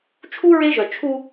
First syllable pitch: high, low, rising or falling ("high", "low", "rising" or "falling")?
high